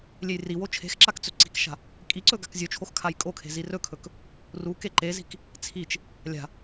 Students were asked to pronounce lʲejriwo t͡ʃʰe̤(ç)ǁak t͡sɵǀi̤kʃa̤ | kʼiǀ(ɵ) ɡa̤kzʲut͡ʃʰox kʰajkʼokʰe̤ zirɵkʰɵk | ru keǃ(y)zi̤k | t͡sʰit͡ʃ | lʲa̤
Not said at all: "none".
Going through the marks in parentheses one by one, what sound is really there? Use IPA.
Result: x, ɵ, e

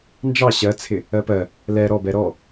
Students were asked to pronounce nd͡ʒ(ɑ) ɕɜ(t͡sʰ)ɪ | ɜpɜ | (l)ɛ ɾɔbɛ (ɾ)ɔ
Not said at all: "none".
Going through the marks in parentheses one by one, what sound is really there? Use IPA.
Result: ɑ, t͡sʰ, l, ɾ

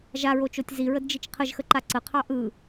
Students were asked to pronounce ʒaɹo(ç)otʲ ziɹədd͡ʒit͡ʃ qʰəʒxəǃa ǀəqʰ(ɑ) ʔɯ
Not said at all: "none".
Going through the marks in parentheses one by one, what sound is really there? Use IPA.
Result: t͡ʃ, ɑ

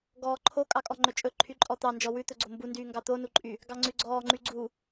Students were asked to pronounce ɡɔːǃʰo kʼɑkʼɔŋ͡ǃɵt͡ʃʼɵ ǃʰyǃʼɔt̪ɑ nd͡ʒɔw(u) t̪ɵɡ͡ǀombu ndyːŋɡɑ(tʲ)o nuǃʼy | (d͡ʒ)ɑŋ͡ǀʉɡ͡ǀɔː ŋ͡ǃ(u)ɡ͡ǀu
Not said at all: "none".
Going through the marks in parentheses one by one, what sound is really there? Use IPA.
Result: ʉ, t̪, ɡ, y

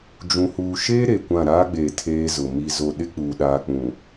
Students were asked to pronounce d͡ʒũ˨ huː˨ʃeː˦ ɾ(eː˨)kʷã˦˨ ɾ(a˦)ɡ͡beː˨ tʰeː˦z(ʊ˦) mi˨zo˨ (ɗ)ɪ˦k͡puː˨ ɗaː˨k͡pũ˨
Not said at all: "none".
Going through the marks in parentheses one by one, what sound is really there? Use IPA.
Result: e˨, aː˦, ʊ˨, ɗ

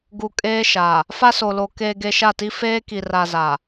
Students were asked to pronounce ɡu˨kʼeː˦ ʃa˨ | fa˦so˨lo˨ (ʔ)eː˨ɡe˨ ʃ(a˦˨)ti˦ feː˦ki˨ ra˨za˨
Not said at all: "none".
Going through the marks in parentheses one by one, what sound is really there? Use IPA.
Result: k, a˦˨

